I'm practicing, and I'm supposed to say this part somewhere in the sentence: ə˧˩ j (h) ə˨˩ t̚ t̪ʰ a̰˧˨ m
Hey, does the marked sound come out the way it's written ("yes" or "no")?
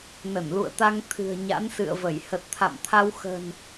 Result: yes